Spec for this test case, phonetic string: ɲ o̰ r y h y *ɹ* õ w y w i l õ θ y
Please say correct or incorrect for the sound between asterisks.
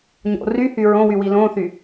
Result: correct